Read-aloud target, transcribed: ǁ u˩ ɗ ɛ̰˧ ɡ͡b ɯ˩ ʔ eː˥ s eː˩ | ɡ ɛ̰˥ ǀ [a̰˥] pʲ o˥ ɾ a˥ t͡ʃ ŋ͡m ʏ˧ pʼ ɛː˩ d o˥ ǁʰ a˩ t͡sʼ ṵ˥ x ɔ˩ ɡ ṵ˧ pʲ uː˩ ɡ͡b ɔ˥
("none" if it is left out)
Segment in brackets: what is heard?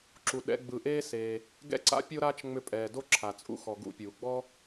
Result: a̰˥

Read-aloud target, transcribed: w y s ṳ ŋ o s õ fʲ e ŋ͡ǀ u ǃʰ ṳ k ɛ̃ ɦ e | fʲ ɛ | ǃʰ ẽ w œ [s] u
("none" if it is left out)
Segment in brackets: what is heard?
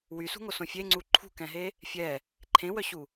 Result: ɕ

